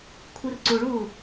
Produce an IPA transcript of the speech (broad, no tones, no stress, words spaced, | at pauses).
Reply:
kʷʰirǀuɭuː